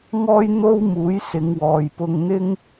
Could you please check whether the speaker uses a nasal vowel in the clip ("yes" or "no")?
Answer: no